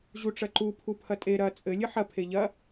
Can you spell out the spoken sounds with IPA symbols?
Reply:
ʑ u ʈ͡ʂ ɐ ǃ u pʰ u pʰ ɐ tʼ e ɾ ɐ t͡sʼ ɘ lʲ ɘ ħ ɐ pʰ e ʎ ɐ

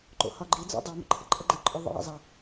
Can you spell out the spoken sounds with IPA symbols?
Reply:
ǃ o̰ h ɒ ɡ͡ǃ i d͡z o̰ dˤ o m ə̰ ǃʰ ə̰ ǃʼ ə ɡ͡ǃ ə ǃʼ o ðˤ ḭ j ə̰ zˤ ə

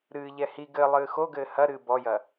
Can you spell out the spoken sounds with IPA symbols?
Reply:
ɾ ɨː ʎ ɛ h i ɡ ɘ lˠ ɨː x o ɡ ɘː h ɐ ɾ ɨː b ɔ j ɐ

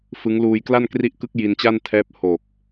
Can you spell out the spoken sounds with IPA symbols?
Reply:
f ɯ˦˥ ŋ l uː˧ j k l a˥˩ n k r i˦˥ ʔ k ɯ˦˥ k̚ j i˧ n t͡ɕ a˥˩ n tʰ ɛː˦˥ p̚ h o˨˩ k̚

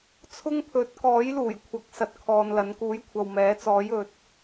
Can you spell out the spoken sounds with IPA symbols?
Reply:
t͡sʰ ʊ˥ ŋ pʰ ɵ˨˥ t̚ k ɔː˨˥ j l uː˨˩ j kʷʰ ɐ˨˥ k̚ s ɐ˧ t̚ kʰ ɔː˧ n l ɐ˨˥ n k uː˨˥ j kʷʰ ɐ˨ w m ɛː˨˥ t͡s ɔː˨˥ j ɵ˨˥ t̚

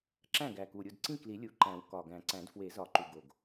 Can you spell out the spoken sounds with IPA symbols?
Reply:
ǁ æ̃˥˩ ɡ æ˨˩ k u˨˩ ɾʲ u˥˩ d ǀ ĩ˥˩ k l i˨˩˦ lʲ u˨˩ ǃ æ̃˨˩˦ w k ɒ˨˩ ɡ æ̃˨˩˦ ǀ æ̃˨˩˦ d f w e˨˩˦ z ɒ˨˩ ǃ u˨˩ ɡ o˨˩ ɡ

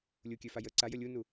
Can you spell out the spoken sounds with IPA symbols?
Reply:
lʲ u kʲ ø f a j ə ǀ a j ə lʲ u n u

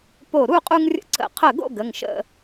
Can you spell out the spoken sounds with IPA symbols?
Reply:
p o˧˩ ɾ u˥˨ qʼ u˧ ŋ rʲ ə̰˧ ǀ ə̰˧˩ qʰ ə˧˩ ɡ o̰˥˨ ɡ ə˩˧˩ ŋ ʃ ə̰˥˨

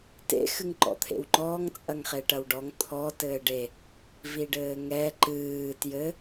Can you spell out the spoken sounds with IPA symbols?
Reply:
t ḛ x ɨ ŋ ǃ ɔ̰ t̪ʰ ḛ w ŋ͡ǃ ɔː ŋ t͡sʼ ɐ ŋ χ e ʈ ɐ w ɖ ɔ ŋ t̪ʰ ɔ t ɘː ɖ e | v i ɖ ɘː ŋ ɛ ǃ ɨː t j ɘ

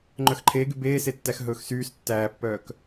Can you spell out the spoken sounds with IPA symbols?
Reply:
ŋ͡ǃ œ x ǃʰ eː ɡ y b eː s e tː æ x ɦ ɵː x s yː s tː æː pː œː k

